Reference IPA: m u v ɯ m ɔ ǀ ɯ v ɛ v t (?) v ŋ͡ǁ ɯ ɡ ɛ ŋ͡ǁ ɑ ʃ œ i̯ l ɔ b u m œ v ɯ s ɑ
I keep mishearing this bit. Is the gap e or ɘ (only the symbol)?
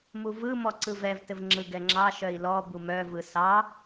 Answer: ɘ